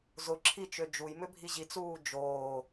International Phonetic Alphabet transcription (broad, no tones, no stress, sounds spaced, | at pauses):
z ʊ ǁʰ i t͡ʃ ø d͡ʒ u j m ʏ bʱ i ʑ i t͡s uː d͡ʒ oː